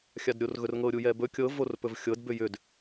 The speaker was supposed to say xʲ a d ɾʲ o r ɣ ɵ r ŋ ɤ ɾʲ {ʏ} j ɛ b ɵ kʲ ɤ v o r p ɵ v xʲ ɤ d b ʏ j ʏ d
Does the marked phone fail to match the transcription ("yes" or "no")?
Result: yes